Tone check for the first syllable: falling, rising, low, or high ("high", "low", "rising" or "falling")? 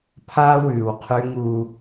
high